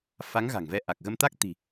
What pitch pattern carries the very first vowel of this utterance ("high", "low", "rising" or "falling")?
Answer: rising